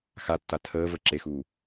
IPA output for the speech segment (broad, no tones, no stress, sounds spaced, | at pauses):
x a tː a tʰ əː v ə ǁ e x uː